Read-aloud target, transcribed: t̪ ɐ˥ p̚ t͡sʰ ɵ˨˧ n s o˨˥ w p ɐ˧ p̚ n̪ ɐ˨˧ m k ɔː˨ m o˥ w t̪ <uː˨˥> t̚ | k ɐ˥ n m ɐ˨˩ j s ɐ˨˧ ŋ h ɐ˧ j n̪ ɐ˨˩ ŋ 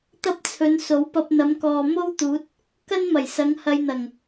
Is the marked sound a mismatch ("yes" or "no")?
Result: no